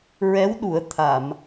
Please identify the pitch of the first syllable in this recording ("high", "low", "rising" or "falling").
rising